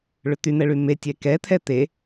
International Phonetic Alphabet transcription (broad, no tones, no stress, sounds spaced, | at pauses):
ɭ ʏ t̪ y n̪ ɛ ɭ y m e tʲ ɛ k ɛ t̪ʰ ɛ t̪ e